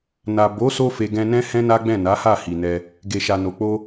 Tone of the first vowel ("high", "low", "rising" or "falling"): low